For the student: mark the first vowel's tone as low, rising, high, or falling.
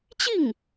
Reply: falling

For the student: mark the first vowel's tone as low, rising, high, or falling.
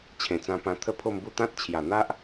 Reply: low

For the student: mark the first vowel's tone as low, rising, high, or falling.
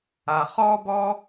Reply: low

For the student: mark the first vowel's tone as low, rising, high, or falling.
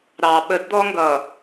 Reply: low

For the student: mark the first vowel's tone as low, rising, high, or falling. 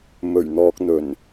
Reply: low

